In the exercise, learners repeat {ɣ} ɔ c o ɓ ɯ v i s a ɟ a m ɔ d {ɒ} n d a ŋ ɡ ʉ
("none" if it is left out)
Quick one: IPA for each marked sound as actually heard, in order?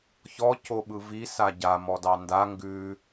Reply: ç, ɑ

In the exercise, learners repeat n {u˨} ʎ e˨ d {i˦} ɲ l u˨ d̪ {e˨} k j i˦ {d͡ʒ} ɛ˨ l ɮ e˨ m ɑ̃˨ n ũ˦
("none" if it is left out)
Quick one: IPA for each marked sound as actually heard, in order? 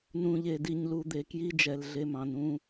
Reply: ũ˨, i˨, e˨, d͡ʒ

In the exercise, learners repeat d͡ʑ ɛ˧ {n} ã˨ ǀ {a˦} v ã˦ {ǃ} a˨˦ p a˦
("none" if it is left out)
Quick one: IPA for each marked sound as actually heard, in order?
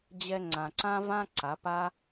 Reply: ŋ͡ǀ, ã˦, ǀ

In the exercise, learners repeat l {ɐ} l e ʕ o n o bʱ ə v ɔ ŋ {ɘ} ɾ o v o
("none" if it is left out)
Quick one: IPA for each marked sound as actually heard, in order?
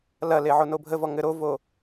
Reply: ɐ, ɘ

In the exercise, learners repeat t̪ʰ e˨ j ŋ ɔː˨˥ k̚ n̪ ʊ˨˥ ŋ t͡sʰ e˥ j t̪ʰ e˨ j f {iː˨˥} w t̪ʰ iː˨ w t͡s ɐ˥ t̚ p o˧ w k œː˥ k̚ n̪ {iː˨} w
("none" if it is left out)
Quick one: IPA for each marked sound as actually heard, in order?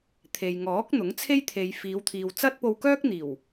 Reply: iː˨˧, iː˨˩

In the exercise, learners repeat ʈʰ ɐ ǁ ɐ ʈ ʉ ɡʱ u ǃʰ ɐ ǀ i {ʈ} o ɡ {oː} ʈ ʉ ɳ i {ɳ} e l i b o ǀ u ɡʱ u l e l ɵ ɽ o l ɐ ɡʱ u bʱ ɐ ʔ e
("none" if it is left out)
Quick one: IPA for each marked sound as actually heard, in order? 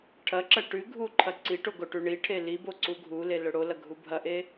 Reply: ʈ, o, ʈʰ

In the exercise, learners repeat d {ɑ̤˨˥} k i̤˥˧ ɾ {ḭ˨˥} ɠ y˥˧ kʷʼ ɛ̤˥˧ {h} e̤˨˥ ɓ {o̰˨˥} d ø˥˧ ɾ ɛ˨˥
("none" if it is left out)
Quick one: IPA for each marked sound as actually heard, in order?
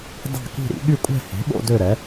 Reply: ɑ̤˥˧, ḭ˨˥, h, o̰˥˧

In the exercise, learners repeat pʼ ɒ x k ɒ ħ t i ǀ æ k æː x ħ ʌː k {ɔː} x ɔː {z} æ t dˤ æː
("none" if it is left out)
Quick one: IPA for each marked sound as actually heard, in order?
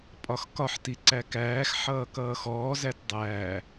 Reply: ʌː, z

